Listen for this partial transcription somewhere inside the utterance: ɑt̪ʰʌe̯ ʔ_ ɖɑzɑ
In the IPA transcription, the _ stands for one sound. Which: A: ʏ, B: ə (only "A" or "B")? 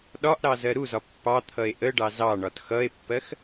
B